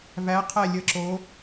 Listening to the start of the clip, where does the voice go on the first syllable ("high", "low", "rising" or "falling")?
rising